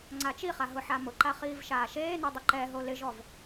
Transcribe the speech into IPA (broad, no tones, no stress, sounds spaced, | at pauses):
ŋ͡ǀ a t͡ʃ i χ a ɦ ʊ ħ a m ʊ ǃ a χ iː v ʃ aː ʃ eː n o dˤ ʊ ǃ ɛ ɦ o l ɪ ʒ ɔ v